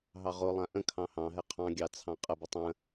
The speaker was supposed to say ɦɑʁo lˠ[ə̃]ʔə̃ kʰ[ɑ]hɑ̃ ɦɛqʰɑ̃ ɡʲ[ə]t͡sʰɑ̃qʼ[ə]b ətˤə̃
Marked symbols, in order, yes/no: no, no, no, yes

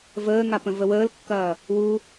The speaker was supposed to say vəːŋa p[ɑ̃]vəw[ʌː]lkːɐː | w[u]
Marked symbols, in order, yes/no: no, no, yes

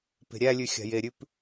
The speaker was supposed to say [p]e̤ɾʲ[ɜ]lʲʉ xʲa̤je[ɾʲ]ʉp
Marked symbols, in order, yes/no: yes, no, yes

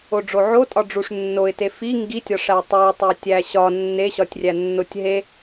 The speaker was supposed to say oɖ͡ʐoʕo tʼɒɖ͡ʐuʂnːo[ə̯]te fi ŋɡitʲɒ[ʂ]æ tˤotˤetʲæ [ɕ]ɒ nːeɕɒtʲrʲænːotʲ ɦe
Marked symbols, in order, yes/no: no, yes, yes

